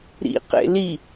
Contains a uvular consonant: yes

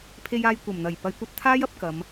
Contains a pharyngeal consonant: no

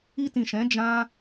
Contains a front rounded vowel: no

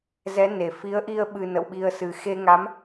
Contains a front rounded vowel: no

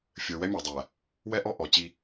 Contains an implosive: no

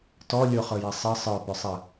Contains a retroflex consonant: no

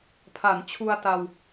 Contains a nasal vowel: no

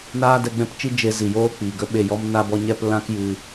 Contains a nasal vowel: yes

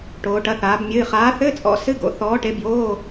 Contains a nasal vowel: no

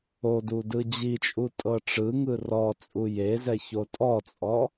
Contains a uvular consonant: no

